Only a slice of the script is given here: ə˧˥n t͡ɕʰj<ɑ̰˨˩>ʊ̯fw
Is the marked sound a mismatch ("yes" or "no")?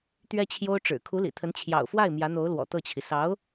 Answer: no